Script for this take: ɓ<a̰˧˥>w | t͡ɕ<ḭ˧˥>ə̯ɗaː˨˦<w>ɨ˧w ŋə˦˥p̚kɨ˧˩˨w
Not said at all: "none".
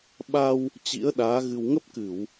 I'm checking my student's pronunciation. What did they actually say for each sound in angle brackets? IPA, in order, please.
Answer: a˧, ḭ˧˥, ɣ

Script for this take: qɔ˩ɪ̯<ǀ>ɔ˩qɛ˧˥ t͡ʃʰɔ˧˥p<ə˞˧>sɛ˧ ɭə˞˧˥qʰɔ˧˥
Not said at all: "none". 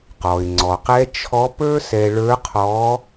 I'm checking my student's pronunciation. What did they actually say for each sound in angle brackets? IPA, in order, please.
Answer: ŋ͡ǀ, ə˞˥

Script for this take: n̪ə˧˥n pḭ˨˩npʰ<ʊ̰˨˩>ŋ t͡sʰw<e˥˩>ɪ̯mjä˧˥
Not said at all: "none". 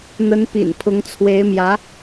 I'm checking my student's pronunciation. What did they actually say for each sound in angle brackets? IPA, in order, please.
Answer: ʊ˧˥, e˧˥

